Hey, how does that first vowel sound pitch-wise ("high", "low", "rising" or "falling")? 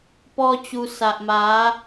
high